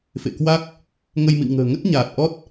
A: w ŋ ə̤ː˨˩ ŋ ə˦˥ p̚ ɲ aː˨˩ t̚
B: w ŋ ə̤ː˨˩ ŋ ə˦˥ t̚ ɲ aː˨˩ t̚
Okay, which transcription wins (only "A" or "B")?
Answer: B